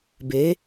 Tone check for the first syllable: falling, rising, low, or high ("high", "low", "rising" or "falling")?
rising